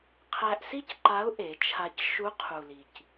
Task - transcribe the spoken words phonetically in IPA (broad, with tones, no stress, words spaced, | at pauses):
qʰæ˧ʔsi˥cǃa˧˥ʊ̯ ʔe˩˧t͡ʃʰa˧c ʃu˧˥qʰu˩li˩c